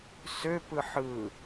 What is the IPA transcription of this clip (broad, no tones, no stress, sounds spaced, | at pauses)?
s ø p ɯ ħ ɯ